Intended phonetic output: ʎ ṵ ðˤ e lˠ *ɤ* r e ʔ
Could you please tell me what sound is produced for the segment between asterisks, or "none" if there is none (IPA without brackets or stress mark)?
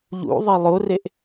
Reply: o